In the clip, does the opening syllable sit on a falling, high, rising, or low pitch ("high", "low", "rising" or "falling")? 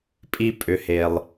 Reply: high